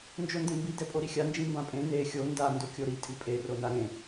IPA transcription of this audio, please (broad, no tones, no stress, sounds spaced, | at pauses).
n d͡ʒ o n d ẽ m b i d ɛ pʼ o ɾ i xʲ a n d͡ʒ ĩ m b ã pʼ ẽ n e xʲ o n d a n d o kʲ o ɾ i tʼ i pʼ e r o n a ɾ ẽ